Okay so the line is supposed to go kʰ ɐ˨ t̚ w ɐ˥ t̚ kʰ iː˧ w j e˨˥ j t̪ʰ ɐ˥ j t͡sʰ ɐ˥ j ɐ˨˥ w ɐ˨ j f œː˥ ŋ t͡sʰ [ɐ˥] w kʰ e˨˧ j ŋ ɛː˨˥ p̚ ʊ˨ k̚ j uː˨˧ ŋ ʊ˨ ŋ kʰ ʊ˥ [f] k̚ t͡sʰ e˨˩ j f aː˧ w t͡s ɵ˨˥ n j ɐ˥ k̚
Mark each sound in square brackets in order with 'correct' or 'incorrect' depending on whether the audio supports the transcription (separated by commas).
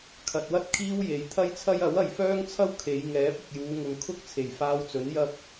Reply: correct, incorrect